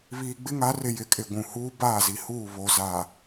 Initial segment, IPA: β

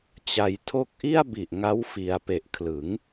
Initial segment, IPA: t͡ɕ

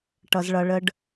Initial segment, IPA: ʈ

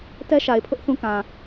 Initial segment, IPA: t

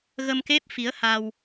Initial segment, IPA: ɣ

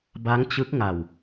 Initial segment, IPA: b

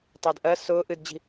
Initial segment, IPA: tˤ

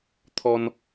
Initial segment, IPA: t̪ʰ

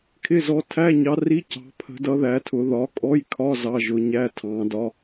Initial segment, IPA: kʰ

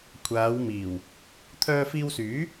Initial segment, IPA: kʷʰ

